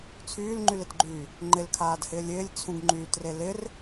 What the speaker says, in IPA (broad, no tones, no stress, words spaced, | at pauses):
t͡sʰyːlŋ͡ǃylɪtɡ͡ǃyː | ŋ͡ǃɪlkʰaːdhɪːlʲ ɪːlʲt͡sʰũɡŋ͡ǃyːtre lɪr